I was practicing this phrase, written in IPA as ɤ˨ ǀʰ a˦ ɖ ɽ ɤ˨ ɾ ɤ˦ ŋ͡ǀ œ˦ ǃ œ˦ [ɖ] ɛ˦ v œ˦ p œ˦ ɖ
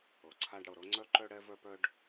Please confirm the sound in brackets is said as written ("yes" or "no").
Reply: no